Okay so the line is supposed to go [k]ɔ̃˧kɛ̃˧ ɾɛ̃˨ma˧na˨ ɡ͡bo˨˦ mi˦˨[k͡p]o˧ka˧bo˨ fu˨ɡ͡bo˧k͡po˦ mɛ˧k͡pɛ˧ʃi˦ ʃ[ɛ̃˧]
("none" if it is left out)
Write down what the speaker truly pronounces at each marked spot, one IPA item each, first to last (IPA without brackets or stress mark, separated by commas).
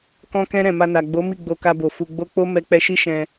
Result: k, ɡ͡b, ɛ̃˧